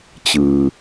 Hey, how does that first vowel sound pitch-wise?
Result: low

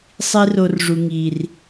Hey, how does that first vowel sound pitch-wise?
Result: high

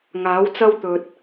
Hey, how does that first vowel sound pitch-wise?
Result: rising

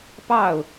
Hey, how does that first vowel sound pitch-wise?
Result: falling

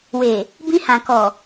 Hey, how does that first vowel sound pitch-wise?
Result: low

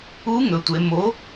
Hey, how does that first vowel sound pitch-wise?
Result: rising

